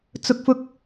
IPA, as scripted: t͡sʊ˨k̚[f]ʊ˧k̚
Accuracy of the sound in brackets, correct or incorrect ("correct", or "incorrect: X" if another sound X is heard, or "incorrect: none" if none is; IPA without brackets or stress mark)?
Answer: correct